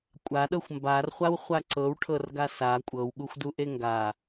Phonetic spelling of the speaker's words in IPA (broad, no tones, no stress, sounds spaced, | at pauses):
kʷʼ a ɗ ɤ xʷ m b a r χʷ a w χʷ a ǀ ɤ w ʈʰ ɤ r ɡ a s a kʷʼ ɤ w ɠ u xʷ d u ʔ e ŋ ɡ a